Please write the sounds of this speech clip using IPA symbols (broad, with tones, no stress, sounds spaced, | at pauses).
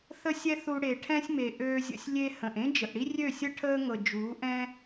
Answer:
θ ə˦ sʲ ɛ˦ θ u˧ ɽ e˨ ʈʰ ɛ̃˦ sʲ m e˨ ʔ øː˧ zʲ ə̰˧ sʲ lʲ e˧ h ə̃˨ ʔ ẽ˦ d͡ʒ ə˨ ʔ ɽ i˦ rʲ ø˦˨ sʲ ə˦ ʈʰ əː˦ ŋ ɤ˨ d͡ʒ uː˨˦ ʔ ɛ̃˦